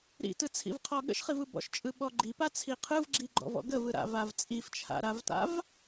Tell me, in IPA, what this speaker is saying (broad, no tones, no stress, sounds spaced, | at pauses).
ɾ ḭ t ɯ t͡sʰ ḭ v qʰ ɔ ɠ ə̰ ʃ χ i v ɯ b ɔ̰ ʃ t͡ʃʼ ɯ ɓ ɔ ɡ͡ǃ i p a t͡sʰ i qʰ ɯ v ɡ͡ǁ i ɡ͡ǃ ɔ̰ v ɔ̰ ɡ ə v ɯ ɾ a̰ v a v t͡sʼ i f t͡ʃʰ a̰ ɾ a v t a̰ v